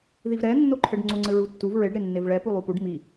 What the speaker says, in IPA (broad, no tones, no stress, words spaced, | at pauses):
ðivɾɛnːoǃʰɘɖ ŋ͡ǀoŋ͡ǀɘɹutːuv ɹeɖɾe nːevɭɛ pulˠupuɖ mi